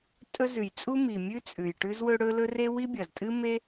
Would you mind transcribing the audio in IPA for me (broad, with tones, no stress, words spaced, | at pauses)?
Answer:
tʼɵ˥ zʉ˩jt͡sʼu˥ mi˩mʲʉ˥ t͡sʼʉ˩jʈʉ˥zwɵ˥ɽɵ˥ lɵ˥re˥ wi˥bʲɐ˩ztʼɨ˥ me˥